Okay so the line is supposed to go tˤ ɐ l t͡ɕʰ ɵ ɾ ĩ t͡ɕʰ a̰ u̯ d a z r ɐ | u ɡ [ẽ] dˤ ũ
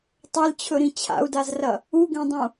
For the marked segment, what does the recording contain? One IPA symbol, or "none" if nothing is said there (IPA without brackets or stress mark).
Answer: ẽ